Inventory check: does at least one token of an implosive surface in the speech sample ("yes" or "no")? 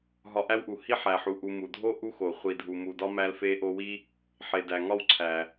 no